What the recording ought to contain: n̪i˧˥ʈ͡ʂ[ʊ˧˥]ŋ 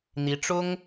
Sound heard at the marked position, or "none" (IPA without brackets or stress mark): ʊ˥